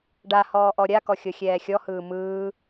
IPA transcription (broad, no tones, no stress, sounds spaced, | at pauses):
ɖ a h ɔː ʔ ɔ ɾʲ a k ɔ xʲ ɤ xʲ ɛː xʲ ɔ h ɯː m ɯː